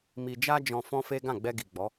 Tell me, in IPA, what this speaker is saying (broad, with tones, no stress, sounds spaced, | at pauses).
m i˧ d͡ʒ a˦ d͡ʒ ɔ̃˧ f ɔ̃˦ f e˦ ɡ ã˦˨ ɡ͡b ɛ˧ ɡ i˨ ɡ͡b ɔ˨˦